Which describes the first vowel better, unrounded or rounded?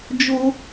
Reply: rounded